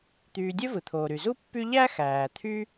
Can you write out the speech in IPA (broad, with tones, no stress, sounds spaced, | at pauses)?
t̪ yː˨ dʲ ø˥ v ɯ˩ t̪ʰ oː˩ ɾ y˩ z u˥ pː y˦ ʎ æ˥ x æː˩ t̪ʰ y˦